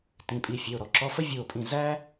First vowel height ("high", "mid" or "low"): high